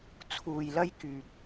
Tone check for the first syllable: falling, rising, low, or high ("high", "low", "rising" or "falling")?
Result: low